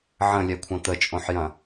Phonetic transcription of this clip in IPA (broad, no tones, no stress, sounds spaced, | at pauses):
ʕ ə̃ lʲ ɛ kʷʰ ɐ̃ t̪ ə t͡ʃʼ õ ħ j ɐ̃